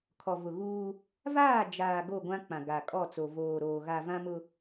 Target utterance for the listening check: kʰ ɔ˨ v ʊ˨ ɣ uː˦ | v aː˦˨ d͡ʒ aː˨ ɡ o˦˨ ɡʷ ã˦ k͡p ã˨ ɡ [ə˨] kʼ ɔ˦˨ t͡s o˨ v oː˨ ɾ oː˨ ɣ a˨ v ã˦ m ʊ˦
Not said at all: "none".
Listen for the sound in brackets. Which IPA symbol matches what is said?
a˨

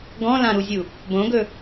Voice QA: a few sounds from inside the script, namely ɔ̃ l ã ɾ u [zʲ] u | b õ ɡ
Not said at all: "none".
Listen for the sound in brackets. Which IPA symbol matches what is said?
zʲ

